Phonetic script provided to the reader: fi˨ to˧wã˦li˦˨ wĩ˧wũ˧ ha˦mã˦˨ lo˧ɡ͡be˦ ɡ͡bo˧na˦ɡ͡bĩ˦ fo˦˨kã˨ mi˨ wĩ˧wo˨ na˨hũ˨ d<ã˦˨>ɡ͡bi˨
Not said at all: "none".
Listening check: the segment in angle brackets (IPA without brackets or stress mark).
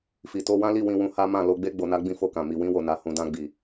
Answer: ã˧